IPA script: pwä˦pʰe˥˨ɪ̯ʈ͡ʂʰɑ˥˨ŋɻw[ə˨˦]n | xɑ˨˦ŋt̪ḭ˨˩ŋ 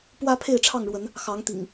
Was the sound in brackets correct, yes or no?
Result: yes